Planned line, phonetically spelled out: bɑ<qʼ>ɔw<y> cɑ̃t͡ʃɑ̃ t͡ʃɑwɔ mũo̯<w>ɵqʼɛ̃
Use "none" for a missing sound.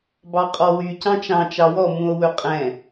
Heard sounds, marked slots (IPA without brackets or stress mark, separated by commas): qʼ, y, w